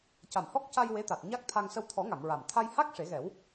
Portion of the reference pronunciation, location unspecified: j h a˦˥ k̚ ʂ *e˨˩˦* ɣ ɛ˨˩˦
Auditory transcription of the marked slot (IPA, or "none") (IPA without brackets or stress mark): e˨˩˦